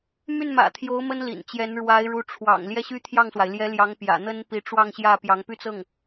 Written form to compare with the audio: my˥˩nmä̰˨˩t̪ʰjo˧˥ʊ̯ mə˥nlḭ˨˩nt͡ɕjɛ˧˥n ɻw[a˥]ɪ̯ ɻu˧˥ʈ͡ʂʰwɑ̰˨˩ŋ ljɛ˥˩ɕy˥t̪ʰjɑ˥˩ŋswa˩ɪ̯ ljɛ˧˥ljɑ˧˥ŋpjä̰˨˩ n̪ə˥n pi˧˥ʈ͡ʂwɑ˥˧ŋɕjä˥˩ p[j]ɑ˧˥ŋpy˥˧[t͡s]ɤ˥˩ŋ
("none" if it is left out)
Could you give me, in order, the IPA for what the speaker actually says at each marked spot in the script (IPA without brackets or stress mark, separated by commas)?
a˧˥, j, t͡s